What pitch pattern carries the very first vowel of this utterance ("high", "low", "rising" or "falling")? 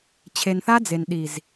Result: low